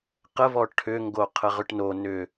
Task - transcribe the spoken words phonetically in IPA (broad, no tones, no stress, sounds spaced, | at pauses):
q ə v ɔ ʈʰ ʏ ŋ ɡ o qʰ ə ʁ ʏ ʈ n o n ʏ